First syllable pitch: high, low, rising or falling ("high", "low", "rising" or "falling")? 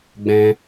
high